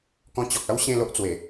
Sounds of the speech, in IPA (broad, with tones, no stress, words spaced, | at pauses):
kɔ̃˧t͡ɕɔ˨k̚a˦w ɕẽ˥˧lo˦ʔt͡swe˨˩